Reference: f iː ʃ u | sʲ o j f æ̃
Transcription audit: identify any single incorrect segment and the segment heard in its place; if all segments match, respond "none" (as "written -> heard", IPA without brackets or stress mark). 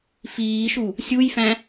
o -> u